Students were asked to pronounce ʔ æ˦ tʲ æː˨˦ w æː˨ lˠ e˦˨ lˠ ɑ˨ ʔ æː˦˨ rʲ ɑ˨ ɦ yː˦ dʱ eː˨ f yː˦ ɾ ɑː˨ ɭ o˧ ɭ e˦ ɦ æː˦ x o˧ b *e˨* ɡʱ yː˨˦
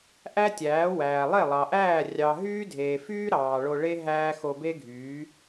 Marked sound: incorrect: e˦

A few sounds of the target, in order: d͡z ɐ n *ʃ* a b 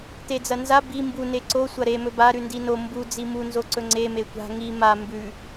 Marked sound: incorrect: z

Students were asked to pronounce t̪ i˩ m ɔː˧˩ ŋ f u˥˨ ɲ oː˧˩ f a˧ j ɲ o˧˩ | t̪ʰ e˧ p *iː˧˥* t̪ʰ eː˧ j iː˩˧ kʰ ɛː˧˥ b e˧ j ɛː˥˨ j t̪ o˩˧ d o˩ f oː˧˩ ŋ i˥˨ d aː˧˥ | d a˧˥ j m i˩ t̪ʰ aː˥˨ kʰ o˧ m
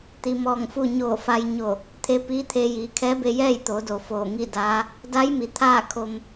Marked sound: correct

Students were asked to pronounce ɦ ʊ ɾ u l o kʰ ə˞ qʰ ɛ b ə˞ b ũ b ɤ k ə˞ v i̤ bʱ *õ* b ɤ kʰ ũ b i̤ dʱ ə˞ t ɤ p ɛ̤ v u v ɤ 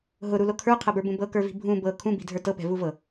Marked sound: incorrect: ũ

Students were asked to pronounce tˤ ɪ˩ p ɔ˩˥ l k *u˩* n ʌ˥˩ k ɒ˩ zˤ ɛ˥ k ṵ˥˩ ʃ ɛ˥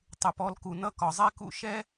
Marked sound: correct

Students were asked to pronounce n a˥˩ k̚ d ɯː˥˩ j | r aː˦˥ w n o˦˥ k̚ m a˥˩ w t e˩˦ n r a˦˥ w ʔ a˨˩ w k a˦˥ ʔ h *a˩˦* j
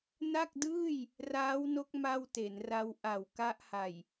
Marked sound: incorrect: a˨˩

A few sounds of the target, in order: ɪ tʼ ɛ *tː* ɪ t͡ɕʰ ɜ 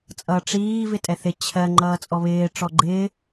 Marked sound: incorrect: θ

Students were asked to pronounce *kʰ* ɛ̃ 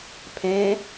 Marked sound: incorrect: pʰ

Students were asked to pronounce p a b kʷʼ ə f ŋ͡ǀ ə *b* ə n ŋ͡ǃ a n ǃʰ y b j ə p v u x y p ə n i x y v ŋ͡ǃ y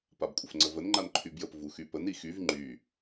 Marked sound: incorrect: v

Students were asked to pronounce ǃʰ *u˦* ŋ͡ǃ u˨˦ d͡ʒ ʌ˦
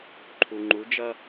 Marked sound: incorrect: u˨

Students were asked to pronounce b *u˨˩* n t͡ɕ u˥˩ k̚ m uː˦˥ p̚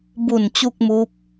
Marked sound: correct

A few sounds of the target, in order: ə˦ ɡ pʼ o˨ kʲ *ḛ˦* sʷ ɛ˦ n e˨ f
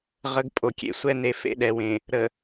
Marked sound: correct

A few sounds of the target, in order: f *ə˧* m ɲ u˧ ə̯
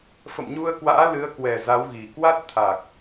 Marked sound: incorrect: ə̰˧˨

